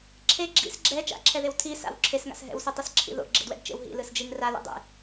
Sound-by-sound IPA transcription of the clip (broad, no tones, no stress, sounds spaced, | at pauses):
ǁʰ e ɡ͡ǁ ḭ s ɡ͡ǁ ɛ t͡ʃ a̰ ǁʰ ɛ ð e w tʰ i s a̰ w ǁʰ e s ŋ a̰ s ɦ ɛ̰ w s i tˤ ʌ s ǁʰ ḭ ð o̰ ɡ͡ǁ ḛ d w ɛ̰ d t͡ʃ ḛ w ɦ ḭ l ɯ s d͡ʒ i ŋ r a l ḛ dˤ ḛ